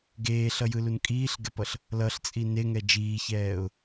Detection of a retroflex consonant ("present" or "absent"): absent